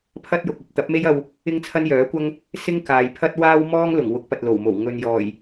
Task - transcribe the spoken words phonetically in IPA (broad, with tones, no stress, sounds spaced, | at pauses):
pʰ ɐ˥ t̚ j ʊ˨ k̚ ɐ˨ p̚ t̪ ɐ˨˥ p̚ m e˥ j ɐ˧ w | ɪ˥ ŋ t͡sʰ ɐ˥ n j œː˨˥ kʷ ɐ˥ ŋ | s ɪ˥ ŋ k aː˨ j pʰ ɐ˥ t̚ w aː˥ w m ɔː˥ ŋ l ʊ˨˩ ŋ w ʊ˨˥ k̚ p ɐ˨ t̚ l o˨˩ w m o˨˩ w ŋ ɵ˨ n j ɔː˨˩ j